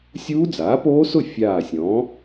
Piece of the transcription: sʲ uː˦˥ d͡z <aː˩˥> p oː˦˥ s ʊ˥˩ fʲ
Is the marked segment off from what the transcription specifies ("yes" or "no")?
no